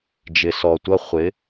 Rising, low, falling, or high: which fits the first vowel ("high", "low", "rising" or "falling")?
low